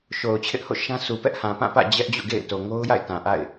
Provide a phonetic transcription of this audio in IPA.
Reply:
ʃ o˨ ʊ̯ t͡ɕʰ ɪ˦ ʔ h o̰˦˨ ʃ ã˦ sʰ u˨ p ɛ˦ ʔ h ã˨ p ã˦˨ p ä̰˦˨ d͡ʑ ɛ˦ ʔ d͡ʑ ṵ˦˨ ɡ ḛ˦˨ ɪ̯ t o˨ ŋ o˦ ʊ̯ j a̰˦˨ ɪ̯ t ã˨ ʔ a̰˦˨ ɪ̯

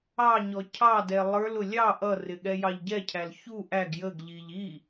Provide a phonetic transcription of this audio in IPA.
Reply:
ɑ ɲ ɔ cʰ ɑ d ɛ lˠ ə˞ l ʊ lʲ ɑ ʔ ʌ r ɪ ɠ ɛ j ɑ ʎ ɟ ɛ cʰ æ l ç u ʔ æ ɡ j ə ɡ ʎ i ʎ i

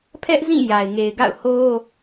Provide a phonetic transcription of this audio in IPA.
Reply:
pʰ ɛ˦ ʔ z ĩ˦˨ j a˨ ɪ̯ ŋ e˨ ɪ̯ ɡ a̰˦˨ ʊ̯ h o˦

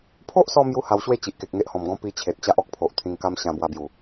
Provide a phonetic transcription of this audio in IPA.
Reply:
pʰ o˦ ʔ s ɔ˧ m j u˦ h a˧ w ɕ w e˥˧ t͡ɕ i˨ ʔ k e˨ k̚ ŋ e˦ ʔ h ɔ̃˨˩ m ɡ ɔ̃˦ p i˧ t͡ɕʰ e˨ t̚ t͡ɕ a˦ ʔ ɔ˦ k̚ pʰ o˨ ʔ t̪ʰ ĩ˧ ŋ k a˦ m ɕ ã˧ b w a˧ b j u˨˩

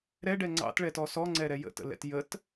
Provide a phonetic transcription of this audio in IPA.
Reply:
ɾ ɛ ɖ ɛ ŋ͡ǀ ɑ̰ t ɭ ɛ t ɔ s ɔ ŋ͡ǀ ɛ ɾ ɛ j ə̰ t ə̰ l ɛ̰ t j ə t

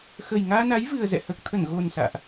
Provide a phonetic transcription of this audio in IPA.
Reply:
x ə˨˩ j ŋ aː˧ n a˨˦ j v ɨ˨˩ ə̯ z ɛ̰˧˨ h əː˨˩ k̚ t̪ʰ ə˧˩ n ɣ o˨˩ n s a̰ː˧˨ ʔ

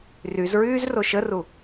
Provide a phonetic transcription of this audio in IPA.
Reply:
r y z ɹ yː z r o ʃ ə r u

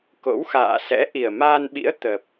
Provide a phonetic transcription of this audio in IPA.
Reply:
k o̰˧˥ w x a̰ː˧˨ s ɛ̰˧˥ ʔ i˨˩ ə̯ m aː˧ n ɓ ḭ˧˥ ə̯ t̪ ə˨˩ p̚

